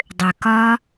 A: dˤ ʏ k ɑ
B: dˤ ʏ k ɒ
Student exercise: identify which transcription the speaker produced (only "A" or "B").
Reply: B